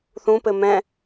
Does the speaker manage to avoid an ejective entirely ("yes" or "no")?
yes